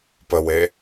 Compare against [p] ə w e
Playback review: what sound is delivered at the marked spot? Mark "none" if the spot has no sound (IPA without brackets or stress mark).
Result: p